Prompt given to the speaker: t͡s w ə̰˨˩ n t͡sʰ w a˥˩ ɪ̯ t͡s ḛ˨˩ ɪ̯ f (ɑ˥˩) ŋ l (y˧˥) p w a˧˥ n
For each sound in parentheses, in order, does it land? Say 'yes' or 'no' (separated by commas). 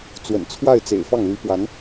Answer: yes, yes